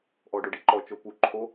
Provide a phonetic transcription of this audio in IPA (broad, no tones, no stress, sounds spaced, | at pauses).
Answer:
ʔ ɔ ɖ o ɖ i ǃ ɔ t͡ʃ o p u ǃʰ o